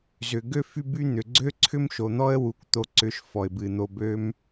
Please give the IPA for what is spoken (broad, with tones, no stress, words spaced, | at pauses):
zʏ˩ ɡø˥fy˦ by˦n̪ʏ˩ ɡ͡ǀø˥ ǀʰʏ˥mʃo˩n̪ɔ˥ə̯ wu˨kʷ t̪o˨ ǀʏ˨ʃ fɔ˩ɪ̯bɨ˩n̪o˨ bø˦m